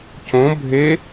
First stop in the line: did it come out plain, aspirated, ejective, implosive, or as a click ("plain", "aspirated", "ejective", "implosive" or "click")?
plain